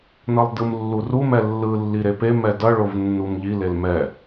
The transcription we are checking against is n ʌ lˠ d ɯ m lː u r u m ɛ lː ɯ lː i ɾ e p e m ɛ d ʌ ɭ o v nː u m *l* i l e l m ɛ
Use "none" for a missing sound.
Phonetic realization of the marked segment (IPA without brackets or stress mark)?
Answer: ʎ